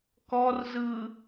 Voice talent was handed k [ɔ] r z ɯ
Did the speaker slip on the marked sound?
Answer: no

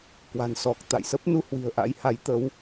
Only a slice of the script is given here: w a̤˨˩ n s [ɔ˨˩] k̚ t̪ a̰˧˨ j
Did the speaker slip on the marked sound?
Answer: no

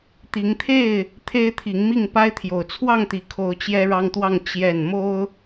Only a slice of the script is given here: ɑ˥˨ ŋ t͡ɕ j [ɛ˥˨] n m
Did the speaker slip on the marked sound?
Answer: no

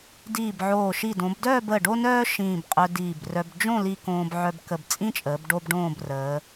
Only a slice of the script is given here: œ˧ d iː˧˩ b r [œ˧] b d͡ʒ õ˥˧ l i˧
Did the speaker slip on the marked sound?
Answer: no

